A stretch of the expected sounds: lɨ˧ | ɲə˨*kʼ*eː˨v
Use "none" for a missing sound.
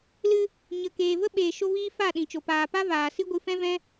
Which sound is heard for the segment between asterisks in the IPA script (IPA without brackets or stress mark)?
k